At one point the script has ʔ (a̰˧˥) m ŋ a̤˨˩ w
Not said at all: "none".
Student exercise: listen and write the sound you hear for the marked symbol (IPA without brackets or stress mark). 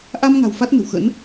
a˧